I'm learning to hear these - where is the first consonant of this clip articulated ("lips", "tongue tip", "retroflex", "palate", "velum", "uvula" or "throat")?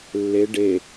tongue tip